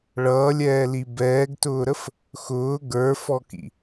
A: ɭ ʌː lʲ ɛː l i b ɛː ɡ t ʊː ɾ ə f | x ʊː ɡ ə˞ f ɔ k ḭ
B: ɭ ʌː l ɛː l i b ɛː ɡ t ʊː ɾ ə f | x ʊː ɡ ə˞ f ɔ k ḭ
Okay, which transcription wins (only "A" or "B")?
A